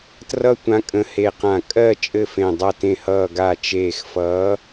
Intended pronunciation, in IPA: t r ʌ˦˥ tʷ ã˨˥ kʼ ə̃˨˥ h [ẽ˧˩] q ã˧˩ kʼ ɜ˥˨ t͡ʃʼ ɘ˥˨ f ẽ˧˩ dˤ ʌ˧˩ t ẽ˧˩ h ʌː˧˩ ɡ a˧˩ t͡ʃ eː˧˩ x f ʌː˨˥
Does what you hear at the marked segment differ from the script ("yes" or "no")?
yes